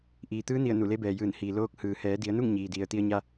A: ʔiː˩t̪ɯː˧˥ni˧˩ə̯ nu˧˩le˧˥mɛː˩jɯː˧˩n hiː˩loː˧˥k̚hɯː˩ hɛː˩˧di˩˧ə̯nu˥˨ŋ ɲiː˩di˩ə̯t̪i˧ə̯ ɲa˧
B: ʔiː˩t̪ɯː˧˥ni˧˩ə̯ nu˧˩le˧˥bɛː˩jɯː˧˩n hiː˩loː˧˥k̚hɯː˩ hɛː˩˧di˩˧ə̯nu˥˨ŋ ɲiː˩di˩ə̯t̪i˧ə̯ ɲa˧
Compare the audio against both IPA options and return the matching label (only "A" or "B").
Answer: B